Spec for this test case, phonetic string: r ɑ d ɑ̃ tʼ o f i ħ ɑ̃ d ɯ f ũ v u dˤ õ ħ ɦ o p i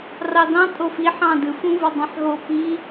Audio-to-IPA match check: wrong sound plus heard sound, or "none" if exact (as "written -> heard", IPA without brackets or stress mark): none